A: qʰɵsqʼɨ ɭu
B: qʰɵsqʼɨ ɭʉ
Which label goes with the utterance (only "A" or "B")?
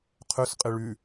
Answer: B